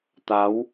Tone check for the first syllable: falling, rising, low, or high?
rising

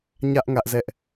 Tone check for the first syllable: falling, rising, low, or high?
high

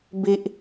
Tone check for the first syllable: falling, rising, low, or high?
high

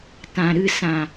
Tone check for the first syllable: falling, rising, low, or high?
low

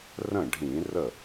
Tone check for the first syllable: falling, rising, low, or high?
falling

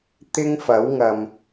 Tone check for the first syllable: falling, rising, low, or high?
high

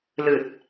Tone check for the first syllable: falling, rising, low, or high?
low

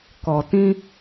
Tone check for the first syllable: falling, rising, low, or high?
low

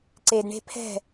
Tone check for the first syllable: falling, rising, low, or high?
low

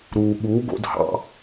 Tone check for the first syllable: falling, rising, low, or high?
low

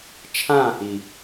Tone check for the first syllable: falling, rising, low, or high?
falling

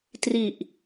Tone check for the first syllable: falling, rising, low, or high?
low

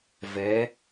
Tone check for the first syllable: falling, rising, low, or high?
rising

